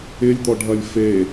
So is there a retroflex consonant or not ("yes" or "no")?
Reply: yes